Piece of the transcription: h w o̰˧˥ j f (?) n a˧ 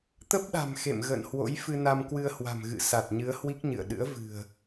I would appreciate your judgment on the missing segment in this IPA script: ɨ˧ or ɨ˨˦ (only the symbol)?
ɨ˧